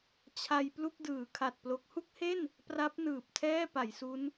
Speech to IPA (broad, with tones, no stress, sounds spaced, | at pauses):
t͡ɕʰ a˧ j p l u˥˩ k̚ d ɯː˩˦ kʰ a˨˩ t̚ p l o˦˥ k̚ h u˥˩ k̚ h e˥˩ n | p r a˦˥ p̚ n ɯː˨˩ p̚ tʰ ɛː˥˩ p a˩˦ j s u˦˥ n